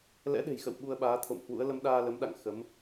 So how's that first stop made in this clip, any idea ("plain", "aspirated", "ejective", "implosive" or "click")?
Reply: implosive